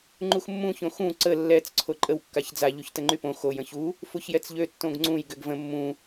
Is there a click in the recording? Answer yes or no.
yes